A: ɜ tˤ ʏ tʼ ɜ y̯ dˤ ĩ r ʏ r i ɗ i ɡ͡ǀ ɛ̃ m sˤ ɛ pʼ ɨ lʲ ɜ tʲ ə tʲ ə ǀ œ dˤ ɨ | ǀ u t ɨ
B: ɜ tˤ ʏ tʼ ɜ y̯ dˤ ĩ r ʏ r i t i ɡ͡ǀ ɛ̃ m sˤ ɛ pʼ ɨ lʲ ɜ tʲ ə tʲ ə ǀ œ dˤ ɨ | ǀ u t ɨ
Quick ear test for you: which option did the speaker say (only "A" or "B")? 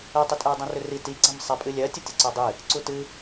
B